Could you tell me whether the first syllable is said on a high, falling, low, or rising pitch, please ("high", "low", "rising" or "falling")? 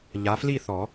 rising